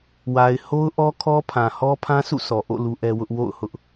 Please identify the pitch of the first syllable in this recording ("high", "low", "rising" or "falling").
low